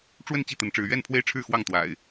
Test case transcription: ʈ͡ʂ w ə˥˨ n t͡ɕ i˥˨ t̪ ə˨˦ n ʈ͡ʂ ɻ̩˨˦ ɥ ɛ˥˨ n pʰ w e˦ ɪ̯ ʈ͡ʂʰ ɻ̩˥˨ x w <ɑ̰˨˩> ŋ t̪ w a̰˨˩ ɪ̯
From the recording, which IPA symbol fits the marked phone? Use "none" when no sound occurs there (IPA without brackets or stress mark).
ɑ˥˨